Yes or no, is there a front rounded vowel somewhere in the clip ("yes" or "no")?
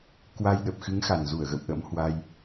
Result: no